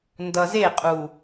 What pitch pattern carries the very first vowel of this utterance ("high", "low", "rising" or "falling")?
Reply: low